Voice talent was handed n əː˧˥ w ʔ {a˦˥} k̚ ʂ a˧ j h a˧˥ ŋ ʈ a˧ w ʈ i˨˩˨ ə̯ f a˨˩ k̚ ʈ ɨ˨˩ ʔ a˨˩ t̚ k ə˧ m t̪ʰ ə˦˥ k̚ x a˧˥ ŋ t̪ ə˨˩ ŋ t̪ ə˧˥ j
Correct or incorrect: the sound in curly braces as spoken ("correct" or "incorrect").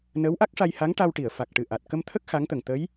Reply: correct